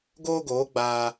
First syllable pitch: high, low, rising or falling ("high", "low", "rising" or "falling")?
high